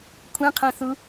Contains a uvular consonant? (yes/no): yes